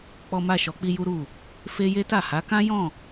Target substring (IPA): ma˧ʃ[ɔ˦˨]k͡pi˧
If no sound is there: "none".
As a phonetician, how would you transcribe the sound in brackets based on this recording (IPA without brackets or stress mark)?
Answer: ɔ˨